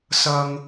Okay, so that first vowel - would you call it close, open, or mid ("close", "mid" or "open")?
open